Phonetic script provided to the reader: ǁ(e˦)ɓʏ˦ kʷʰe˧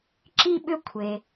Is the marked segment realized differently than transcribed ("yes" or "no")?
yes